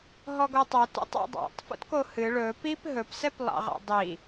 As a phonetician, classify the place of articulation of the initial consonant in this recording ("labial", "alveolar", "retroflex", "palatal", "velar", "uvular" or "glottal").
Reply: glottal